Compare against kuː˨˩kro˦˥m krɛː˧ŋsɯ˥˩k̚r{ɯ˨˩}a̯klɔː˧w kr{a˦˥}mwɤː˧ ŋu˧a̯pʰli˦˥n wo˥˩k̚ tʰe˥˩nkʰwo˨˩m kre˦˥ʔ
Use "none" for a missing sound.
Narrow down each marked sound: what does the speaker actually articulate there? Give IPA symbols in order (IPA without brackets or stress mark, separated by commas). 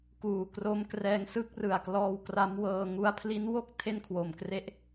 ɯ˨˩, a˦˥